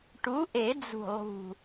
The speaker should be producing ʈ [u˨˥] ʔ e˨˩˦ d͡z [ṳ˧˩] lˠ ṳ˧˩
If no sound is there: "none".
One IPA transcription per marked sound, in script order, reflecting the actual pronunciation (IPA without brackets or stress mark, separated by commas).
u˨˥, ṳ˧˩